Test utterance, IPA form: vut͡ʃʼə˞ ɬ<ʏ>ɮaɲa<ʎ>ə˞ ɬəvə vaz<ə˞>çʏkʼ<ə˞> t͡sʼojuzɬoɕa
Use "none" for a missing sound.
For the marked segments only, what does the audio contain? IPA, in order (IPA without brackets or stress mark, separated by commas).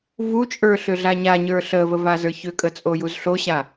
ʏ, ɲ, ə˞, ə